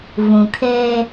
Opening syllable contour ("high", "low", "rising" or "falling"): low